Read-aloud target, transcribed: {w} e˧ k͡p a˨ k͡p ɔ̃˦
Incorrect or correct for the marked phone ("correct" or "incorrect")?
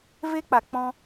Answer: incorrect